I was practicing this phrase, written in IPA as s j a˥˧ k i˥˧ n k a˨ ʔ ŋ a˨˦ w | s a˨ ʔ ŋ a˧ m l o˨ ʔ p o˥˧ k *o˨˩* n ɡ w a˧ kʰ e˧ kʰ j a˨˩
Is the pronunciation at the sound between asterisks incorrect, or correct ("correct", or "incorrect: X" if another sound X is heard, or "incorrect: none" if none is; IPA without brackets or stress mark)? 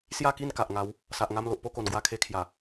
correct